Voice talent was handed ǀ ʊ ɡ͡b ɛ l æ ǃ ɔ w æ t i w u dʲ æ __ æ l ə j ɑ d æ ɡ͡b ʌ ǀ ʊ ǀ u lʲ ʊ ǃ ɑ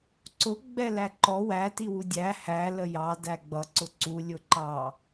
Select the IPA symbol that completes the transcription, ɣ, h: h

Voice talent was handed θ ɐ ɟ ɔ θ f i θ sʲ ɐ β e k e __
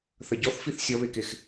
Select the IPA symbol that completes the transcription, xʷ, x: x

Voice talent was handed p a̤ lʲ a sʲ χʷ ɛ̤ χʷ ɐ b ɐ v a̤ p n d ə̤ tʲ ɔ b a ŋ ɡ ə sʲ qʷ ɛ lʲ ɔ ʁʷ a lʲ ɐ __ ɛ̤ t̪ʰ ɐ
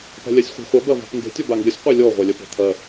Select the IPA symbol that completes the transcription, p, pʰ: p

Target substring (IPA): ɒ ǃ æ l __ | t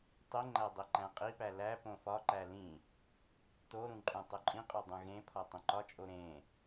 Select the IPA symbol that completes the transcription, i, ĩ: ĩ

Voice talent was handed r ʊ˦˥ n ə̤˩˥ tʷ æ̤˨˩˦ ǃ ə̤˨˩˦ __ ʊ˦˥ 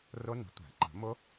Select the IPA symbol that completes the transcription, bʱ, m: m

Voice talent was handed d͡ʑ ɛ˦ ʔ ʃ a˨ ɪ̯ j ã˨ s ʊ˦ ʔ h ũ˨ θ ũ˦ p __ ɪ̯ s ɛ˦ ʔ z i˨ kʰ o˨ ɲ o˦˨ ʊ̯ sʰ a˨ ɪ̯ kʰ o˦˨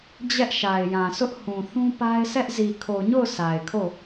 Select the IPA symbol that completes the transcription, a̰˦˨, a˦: a˦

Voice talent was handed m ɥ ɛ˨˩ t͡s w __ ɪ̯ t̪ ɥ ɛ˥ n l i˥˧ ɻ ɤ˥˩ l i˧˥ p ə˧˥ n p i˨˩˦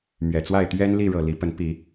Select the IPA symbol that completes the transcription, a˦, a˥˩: a˥˩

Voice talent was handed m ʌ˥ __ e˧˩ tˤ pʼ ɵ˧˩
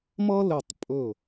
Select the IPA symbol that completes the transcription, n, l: l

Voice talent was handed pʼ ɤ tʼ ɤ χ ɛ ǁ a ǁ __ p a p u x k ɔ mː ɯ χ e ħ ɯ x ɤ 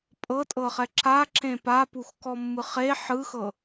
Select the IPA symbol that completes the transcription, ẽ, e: ẽ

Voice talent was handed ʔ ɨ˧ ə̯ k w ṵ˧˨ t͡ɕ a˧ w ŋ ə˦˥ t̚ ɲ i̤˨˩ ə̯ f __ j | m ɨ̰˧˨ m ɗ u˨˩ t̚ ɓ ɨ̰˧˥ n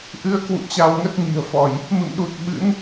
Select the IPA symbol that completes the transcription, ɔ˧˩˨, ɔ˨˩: ɔ˧˩˨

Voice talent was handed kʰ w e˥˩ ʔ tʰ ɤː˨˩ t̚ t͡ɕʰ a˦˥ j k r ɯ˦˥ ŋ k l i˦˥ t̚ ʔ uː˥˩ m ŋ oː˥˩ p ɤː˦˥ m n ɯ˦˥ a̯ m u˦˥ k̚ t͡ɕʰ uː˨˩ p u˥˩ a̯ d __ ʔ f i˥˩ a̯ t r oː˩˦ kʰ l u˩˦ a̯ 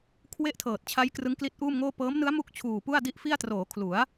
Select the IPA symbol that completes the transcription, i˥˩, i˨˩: i˥˩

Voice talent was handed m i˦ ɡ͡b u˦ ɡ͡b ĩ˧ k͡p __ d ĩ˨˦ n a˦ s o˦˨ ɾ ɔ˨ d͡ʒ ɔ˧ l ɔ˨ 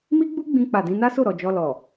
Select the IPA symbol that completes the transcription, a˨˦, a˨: a˨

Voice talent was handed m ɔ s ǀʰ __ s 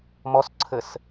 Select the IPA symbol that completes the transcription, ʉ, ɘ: ɘ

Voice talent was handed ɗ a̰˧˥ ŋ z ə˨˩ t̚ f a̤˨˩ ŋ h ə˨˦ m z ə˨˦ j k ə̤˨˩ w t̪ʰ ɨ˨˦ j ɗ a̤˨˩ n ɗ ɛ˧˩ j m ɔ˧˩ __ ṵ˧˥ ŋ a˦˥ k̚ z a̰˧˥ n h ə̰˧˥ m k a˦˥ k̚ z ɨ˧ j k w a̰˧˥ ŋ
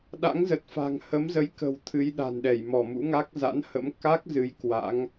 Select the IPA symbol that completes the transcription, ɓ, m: m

